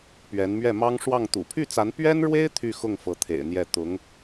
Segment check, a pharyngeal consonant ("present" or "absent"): absent